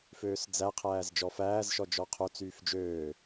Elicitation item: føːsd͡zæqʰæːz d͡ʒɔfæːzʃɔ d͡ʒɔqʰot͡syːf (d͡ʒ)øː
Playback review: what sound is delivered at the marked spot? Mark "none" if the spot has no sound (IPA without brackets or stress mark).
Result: d͡ʒ